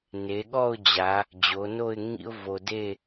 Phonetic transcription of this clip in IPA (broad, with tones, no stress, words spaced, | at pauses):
ne˩˧ɠɔ˥˧ʊ̯d͡ʑa˩˧ | d͡ʑo˩˧no˥˧ɪ̯ ŋḭ˥ʊ̯vo˧ de˥˧